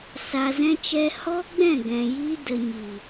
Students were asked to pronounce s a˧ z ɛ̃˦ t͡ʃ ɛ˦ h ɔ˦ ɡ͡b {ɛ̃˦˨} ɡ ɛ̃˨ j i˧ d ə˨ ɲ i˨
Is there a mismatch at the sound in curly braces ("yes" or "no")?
no